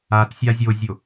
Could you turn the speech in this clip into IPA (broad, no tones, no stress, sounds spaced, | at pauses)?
a t sʲ a zʲ o zʲ o